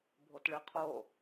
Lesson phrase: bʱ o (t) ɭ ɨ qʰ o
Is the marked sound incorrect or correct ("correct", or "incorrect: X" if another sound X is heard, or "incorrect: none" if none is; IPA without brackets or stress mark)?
correct